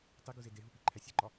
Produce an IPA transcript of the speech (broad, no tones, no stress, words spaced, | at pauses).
tˤiɡuze deɦupiǃʰæ sʲeǃɒ